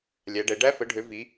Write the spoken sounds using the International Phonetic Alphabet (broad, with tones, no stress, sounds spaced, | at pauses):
lʲ æ˨˦ ɖ ɛ˨˦ ɖ æ˦˥ f ə˨˦ ɖʱ ø˨˦ v i˨˦